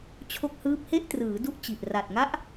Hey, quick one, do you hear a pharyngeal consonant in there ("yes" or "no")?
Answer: no